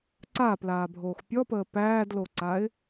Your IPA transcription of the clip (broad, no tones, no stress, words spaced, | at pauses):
ǀaːplaːbʱoːx pʲɔpəː pæːdloǀaɪ̯